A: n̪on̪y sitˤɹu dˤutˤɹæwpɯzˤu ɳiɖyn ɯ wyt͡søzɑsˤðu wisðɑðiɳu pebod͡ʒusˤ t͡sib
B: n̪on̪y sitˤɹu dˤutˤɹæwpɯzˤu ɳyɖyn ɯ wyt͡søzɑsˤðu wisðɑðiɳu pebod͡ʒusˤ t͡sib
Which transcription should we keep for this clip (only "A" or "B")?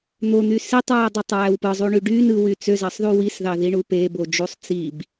B